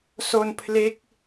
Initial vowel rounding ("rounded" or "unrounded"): rounded